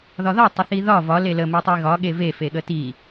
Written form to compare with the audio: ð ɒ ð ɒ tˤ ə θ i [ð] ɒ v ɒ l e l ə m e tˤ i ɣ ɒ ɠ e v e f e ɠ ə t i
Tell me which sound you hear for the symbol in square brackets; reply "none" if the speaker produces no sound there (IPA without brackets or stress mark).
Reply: ð